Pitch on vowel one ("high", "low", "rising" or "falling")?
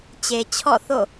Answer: low